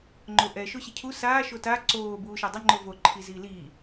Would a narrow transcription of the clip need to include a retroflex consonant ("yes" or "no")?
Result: no